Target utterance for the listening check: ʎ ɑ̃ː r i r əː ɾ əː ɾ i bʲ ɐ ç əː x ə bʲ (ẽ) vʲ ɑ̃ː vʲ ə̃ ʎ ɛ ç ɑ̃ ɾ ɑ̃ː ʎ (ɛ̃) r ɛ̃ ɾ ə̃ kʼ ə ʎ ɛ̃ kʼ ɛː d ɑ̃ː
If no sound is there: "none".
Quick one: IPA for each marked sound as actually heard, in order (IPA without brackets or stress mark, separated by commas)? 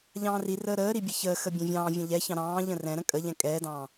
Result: ɛ̃, ə̃